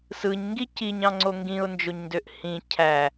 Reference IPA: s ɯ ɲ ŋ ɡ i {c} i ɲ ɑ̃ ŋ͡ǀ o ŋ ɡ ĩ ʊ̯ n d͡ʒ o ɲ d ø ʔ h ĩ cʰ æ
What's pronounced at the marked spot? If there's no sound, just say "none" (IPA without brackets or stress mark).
c